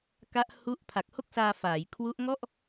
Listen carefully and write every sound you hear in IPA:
k a˦˥ ʔ h u˥˩ ʔ pʰ a˨˩ k̚ h o˥˩ k̚ s aː˧ f aː˩˦ j kʰ w u˦˥ ʔ ŋ ɔ˥˩ ʔ

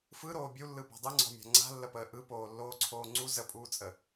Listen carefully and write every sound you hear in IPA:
f ɯ ɾ oː bʲ u lː ɯ b ɔ̤ dˤ ɯ ŋ͡ǀ ɔ̤ mʲ a̤ ŋ͡ǀ a̤ lː ə p əː ʔ ɯ p oː lː oː ǀʰ oː ŋ͡ǀ u z ə pʼ uː t͡sʼ ə

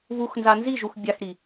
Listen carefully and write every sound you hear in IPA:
β u x n z a n z i ʒ u x bʲ a x ɾ i

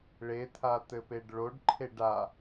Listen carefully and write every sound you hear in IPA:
ɭ e t̪ʰ a t̪ ɘ p e ɖ ɭ o ɖ ǃʰ e ɖ a

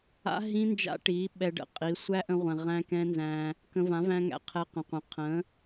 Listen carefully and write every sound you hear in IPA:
a̰˦ ɦ ĩ˦ n d͡ʒ a̰˦ ʈ i˨˦ ɓ ɛ˧ ɖ ə̰˨˦ qʼ i˨˦ sʷ æ˦ ʔ ə̃˧ ʁʷ ɛ̃˨ ʁ æ̃˦ k ɛ̃˦ n z æ̃˧ | k ə̃˧ v ã˨˦ v æ̃˧ ŋ æ̰˨ qʰ ɛ˧ q ə̃˨ qʷ ə̃˨ qʰ ə̃˨˦

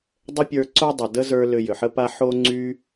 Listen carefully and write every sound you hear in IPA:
dˤ ə˦ pʲ ə˞˧ ǀ o˦ dˤ ʌ˨ d ə˦ z ə˞˧ l ʏ˧ j ʏ˨ ħ ə˦ p a˦ ħ o˦ ŋ͡ǀ y˦

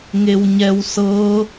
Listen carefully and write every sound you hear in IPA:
ŋ e w ɲ ɛ w s ɤ

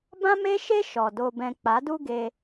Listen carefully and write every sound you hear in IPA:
b ã˦ m e˦ ʃ e˦ ʃ ɔ˨ d o˧ b ɛ̃˧ k͡p a˨˦ d u˦ ɡ eː˧

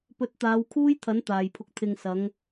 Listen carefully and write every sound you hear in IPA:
p ɵ˨˥ t̚ t̪ aː˨˧ w kʰ uː˥ j t̪ʰ ɐ˨˥ n t̪ aː˨˩ j pʰ ʊ˨ k̚ t̪ʰ ɪ˨ ŋ s ɐ˨˧ ŋ

